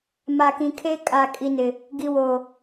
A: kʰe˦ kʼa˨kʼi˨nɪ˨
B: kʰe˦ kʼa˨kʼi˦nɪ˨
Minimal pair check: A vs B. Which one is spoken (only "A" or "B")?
A